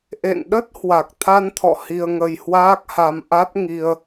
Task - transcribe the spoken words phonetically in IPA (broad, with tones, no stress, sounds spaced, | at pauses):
ʔ ḛ˧˨ n ɗ ə˦˥ t̚ h w a˨˩ k̚ t̪ʰ a˧ n t̪ʰ ɔ̰˧˨ h i˧ ə̯ ŋ ə˧ j h w aː˦˥ k̚ h a˧ m ʔ a˦˥ t̚ ŋ i˧ ə̯